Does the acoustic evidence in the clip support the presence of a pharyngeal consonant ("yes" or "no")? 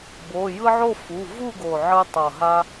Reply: yes